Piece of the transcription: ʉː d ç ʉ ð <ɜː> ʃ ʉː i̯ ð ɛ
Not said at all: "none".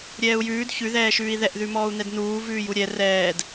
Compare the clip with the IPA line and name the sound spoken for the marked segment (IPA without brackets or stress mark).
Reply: ɛː